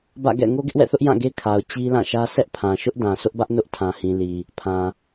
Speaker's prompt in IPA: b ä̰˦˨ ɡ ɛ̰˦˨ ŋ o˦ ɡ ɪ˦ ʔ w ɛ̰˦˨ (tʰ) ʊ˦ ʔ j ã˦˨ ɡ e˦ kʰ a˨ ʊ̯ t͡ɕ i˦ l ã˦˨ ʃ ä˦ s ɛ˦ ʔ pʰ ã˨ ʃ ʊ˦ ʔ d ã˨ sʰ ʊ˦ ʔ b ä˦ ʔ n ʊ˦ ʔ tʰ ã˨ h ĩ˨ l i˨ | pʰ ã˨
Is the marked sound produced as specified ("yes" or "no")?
no